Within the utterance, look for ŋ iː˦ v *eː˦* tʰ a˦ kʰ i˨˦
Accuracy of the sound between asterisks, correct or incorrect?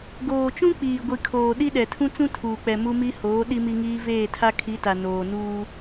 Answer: incorrect: eː˦˨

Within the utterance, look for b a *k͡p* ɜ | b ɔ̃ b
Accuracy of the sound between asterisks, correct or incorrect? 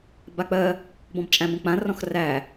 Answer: correct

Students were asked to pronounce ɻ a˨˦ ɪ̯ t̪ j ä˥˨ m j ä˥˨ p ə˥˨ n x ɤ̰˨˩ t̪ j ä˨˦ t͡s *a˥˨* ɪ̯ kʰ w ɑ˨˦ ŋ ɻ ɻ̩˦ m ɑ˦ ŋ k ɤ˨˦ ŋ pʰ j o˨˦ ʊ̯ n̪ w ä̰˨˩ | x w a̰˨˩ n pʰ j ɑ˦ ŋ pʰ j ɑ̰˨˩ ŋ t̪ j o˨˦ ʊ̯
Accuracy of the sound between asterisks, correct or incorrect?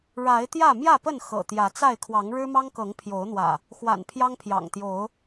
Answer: correct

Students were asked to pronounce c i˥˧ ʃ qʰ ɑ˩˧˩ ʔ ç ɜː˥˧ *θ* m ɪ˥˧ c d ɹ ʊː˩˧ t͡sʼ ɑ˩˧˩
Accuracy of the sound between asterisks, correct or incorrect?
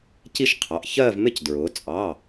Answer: incorrect: v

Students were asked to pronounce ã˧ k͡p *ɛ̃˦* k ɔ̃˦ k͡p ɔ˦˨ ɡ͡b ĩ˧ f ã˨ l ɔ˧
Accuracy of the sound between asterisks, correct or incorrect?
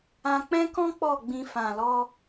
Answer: correct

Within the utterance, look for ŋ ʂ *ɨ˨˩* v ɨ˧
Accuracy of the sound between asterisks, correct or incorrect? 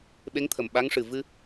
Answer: correct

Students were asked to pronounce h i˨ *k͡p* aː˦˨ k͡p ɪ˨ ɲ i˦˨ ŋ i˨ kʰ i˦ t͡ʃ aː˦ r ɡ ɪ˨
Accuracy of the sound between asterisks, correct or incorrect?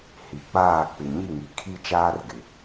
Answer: correct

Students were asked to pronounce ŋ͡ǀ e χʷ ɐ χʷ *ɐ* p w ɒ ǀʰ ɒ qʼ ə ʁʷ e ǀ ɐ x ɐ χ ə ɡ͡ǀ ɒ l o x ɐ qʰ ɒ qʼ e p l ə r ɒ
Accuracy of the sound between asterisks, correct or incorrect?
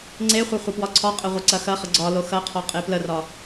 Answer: correct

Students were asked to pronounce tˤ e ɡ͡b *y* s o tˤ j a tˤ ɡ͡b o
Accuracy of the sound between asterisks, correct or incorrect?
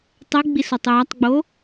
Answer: incorrect: i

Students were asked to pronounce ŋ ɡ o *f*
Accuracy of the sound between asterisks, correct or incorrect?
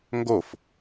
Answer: correct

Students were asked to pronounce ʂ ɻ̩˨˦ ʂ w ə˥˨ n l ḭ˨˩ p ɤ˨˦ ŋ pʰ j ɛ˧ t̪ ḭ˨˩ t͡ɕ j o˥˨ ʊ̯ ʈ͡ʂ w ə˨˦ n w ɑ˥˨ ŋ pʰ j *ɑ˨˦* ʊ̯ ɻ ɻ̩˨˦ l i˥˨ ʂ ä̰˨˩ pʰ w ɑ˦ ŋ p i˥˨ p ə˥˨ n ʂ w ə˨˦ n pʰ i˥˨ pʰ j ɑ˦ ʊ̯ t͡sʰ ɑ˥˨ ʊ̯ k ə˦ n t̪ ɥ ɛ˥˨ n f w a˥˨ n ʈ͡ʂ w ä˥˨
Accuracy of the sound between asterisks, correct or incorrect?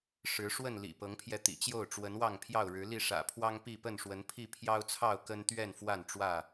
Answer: incorrect: ɑ˥˨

